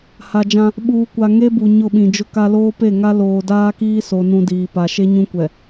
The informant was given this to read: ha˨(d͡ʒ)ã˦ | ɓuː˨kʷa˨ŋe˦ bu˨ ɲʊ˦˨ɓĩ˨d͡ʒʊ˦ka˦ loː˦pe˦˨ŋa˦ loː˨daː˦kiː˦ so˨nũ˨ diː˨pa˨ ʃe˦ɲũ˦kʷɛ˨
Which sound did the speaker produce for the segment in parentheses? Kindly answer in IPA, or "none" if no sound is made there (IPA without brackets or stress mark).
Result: d͡ʒ